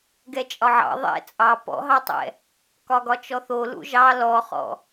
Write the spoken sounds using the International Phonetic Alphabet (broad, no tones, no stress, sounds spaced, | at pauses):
ɡ ɛ t͡ʃʼ ɒ ʕ ɑ̰ ðˤ ɛ̰ t͡sʼ ɑ p ɔ̰ ɦ ɑ tˤ ɛ̰ | k ɒ ɡ ɒ t͡ʃ ɔ θ o l ṵ ʒ ɑ l ɔ χ ɔ̰